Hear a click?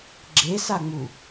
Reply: yes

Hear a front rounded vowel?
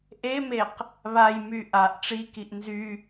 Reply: yes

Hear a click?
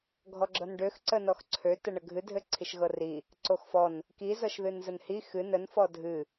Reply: yes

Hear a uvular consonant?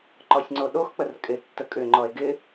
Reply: no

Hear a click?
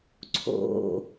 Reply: yes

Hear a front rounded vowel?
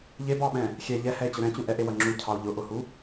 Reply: no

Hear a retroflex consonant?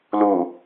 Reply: no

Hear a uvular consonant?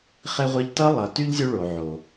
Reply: yes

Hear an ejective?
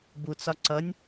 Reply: no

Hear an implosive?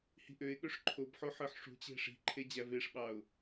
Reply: yes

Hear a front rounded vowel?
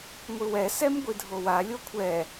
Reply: no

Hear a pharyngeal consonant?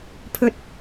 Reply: no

